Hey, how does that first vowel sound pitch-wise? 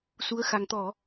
rising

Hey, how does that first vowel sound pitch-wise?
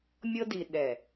high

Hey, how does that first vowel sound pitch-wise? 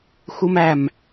high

